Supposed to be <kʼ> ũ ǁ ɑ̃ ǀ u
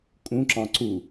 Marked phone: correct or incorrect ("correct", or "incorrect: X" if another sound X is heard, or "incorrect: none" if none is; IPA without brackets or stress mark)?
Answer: correct